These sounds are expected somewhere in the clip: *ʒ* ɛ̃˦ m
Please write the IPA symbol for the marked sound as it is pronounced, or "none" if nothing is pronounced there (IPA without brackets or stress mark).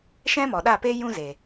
ʃ